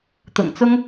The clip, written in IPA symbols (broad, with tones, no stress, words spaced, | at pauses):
t̪ʊ̰˨˩ŋt͡sʊ˥ŋ